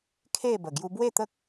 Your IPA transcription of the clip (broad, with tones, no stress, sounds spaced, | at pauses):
kʰ e˥˧ b ə˨˩ ɡ j u˧ b w e˥˧ t̪ ə˦ k̚